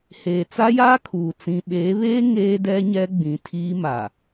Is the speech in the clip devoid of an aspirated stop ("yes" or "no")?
no